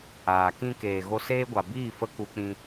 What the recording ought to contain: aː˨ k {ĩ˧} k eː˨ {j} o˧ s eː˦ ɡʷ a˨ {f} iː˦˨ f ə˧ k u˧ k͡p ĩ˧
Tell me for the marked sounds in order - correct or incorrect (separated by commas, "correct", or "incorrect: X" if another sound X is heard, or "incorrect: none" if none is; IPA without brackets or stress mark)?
correct, incorrect: ɣ, incorrect: b